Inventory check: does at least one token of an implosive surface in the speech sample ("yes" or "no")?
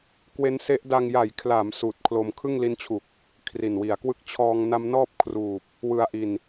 no